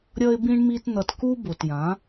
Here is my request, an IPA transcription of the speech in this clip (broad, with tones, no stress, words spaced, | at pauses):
ɾʲʌ˦ɪ̯bĩ˦ɳmi˦tn̪ʌ˧t ku˦bo˨tjã˨˦